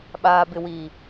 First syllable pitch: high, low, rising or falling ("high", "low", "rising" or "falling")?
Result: low